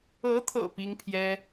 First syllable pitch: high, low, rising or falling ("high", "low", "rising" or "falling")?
rising